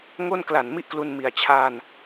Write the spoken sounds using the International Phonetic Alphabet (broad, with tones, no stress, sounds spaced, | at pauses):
ŋ o˥˩ n k l a˨˩ n m i˥˩ ʔ k l u˧ n m i˨˩ a̯ t͡ɕʰ a˥˩ n